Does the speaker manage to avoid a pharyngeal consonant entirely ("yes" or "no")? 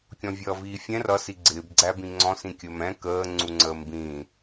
yes